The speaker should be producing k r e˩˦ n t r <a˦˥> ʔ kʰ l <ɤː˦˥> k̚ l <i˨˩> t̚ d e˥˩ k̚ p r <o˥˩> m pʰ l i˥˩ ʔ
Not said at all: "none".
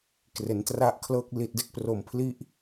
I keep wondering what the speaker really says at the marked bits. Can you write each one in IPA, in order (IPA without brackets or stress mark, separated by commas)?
a˦˥, ɤː˦˥, i˨˩, o˨˩